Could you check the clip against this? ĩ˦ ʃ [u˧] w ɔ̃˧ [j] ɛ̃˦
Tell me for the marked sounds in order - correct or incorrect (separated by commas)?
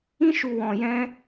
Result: correct, correct